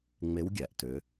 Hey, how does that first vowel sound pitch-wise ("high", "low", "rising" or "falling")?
rising